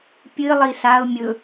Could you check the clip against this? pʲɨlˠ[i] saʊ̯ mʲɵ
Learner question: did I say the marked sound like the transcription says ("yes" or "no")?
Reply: yes